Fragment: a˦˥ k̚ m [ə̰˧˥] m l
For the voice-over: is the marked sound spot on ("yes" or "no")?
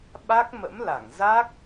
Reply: yes